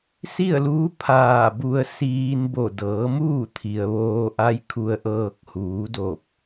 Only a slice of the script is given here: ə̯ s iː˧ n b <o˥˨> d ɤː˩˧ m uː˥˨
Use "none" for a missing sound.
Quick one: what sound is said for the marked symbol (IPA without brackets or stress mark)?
o˧˩